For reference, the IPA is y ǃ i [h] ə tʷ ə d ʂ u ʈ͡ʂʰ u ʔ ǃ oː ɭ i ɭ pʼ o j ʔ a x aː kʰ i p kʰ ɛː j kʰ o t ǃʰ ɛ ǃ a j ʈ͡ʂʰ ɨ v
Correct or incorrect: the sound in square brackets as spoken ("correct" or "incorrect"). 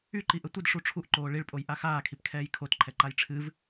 incorrect